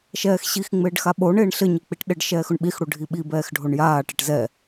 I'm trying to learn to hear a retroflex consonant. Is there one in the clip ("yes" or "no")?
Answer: yes